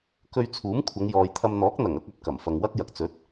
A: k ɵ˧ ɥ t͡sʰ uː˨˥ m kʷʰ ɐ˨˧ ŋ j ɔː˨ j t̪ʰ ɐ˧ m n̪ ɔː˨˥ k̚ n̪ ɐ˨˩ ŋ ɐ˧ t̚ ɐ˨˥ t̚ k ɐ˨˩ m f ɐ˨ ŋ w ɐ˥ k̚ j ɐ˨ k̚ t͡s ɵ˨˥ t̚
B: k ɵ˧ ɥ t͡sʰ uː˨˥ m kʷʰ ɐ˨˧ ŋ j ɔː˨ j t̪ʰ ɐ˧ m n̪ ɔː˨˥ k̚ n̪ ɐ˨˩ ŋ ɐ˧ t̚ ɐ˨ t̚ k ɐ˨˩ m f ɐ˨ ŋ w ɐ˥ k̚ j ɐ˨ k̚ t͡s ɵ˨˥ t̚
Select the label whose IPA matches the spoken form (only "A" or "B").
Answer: B